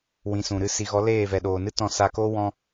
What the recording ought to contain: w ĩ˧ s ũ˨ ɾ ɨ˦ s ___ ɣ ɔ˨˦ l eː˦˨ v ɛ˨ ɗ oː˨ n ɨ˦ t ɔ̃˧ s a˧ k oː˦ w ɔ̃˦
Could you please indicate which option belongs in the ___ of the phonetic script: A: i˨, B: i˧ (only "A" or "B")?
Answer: A